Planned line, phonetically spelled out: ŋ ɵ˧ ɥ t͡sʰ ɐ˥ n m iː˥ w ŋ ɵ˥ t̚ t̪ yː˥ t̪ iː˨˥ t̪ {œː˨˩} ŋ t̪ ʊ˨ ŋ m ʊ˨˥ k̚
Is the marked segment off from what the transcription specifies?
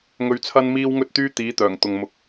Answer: no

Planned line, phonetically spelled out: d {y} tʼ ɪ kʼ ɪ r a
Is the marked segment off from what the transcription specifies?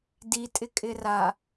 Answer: yes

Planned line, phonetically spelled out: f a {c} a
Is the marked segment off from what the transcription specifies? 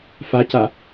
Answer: no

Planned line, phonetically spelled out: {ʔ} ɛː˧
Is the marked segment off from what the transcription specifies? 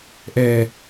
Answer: no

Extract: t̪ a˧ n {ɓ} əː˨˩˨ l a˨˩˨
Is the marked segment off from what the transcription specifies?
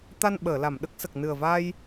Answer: no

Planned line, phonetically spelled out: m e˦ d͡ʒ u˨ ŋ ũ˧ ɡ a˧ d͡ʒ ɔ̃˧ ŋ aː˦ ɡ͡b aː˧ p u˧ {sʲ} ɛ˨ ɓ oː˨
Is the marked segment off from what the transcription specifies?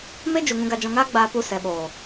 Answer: yes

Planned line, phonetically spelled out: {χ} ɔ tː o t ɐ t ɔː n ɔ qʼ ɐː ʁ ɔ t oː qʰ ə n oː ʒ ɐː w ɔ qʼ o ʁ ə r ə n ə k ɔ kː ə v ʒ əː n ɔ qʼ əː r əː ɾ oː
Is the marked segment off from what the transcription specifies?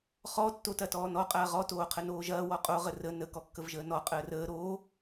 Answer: no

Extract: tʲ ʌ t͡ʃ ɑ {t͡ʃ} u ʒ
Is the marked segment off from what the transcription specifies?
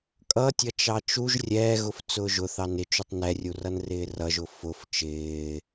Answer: no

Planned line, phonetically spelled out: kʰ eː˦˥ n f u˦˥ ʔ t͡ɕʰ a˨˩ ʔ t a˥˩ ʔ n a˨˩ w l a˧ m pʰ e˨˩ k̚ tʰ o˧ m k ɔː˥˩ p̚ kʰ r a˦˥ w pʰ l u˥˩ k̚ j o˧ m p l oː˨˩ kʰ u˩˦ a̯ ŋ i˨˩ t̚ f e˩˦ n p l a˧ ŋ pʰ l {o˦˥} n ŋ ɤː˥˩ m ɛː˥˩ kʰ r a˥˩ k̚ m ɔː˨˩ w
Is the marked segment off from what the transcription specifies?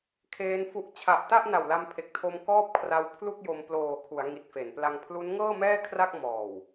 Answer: yes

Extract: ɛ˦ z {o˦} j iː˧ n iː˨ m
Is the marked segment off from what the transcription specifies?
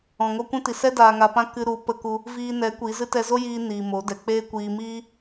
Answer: no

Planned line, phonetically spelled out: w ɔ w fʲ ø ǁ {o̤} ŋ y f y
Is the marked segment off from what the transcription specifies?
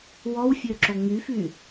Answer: yes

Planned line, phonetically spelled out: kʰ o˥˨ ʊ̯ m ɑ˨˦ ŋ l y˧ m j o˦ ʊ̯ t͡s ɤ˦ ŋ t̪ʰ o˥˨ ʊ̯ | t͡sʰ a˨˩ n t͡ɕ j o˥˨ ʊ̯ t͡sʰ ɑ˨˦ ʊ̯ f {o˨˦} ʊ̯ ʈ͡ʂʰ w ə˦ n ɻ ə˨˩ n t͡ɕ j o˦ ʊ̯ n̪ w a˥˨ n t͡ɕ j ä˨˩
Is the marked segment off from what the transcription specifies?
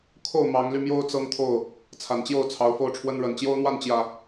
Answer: yes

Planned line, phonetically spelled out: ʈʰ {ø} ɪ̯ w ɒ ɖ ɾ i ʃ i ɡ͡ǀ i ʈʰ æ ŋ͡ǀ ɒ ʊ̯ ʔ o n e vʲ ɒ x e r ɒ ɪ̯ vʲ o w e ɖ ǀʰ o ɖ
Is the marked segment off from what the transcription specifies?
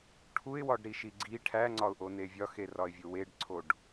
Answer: yes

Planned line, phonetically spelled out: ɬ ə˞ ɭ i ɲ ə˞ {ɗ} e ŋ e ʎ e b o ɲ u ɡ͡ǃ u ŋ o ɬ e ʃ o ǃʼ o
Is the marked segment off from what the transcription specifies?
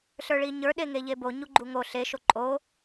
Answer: no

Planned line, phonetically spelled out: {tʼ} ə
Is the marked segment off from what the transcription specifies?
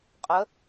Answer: yes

